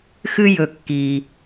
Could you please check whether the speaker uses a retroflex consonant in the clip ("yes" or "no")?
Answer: no